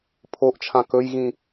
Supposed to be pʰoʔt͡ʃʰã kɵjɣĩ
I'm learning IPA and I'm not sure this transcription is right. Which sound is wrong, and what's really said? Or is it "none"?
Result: none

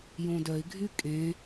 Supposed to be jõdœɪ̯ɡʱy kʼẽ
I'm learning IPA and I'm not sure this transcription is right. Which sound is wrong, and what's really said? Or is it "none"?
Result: none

